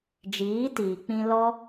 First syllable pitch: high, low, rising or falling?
rising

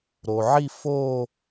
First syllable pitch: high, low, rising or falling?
low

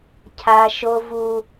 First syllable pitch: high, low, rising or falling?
high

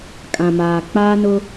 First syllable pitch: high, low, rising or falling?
low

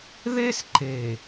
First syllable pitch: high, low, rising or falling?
high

